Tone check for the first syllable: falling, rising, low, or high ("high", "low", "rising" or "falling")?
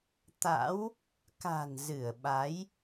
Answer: rising